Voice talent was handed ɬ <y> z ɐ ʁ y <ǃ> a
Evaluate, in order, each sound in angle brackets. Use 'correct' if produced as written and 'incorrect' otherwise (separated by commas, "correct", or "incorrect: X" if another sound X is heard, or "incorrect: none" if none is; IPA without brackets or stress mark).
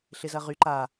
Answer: incorrect: ɪ, correct